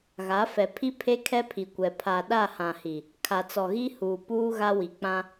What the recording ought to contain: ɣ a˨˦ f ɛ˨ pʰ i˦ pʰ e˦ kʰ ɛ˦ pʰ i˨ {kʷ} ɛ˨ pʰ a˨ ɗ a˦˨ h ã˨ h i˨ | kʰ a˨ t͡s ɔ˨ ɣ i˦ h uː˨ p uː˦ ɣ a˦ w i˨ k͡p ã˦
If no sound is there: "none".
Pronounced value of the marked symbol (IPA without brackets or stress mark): kʷ